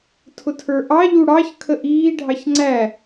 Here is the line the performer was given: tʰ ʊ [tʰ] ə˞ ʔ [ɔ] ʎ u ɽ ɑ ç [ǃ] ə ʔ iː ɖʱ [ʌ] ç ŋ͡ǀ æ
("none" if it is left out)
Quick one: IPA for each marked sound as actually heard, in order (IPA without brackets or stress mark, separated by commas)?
tʰ, ɑ, kʰ, ɑ